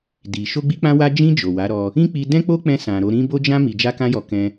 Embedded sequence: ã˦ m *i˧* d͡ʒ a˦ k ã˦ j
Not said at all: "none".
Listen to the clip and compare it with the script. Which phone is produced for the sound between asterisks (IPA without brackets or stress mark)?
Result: i˧